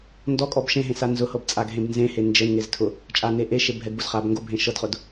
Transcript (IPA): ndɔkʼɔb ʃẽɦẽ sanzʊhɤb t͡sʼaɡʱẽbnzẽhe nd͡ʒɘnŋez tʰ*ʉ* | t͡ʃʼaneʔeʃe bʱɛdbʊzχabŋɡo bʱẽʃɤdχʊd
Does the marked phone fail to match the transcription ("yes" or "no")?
yes